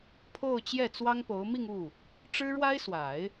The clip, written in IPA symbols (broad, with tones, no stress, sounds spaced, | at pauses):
pʰ o˥˧ ʊ̯ t͡ɕ j ɛ˥˩ t͡s w ɑ˥ ŋ p o˧˥ ʊ̯ m i˥˧ ŋ u˥˩ | ʈ͡ʂ ɻ̩˥ ɻ w a˥ ɪ̯ s w a˨˩˦ ɪ̯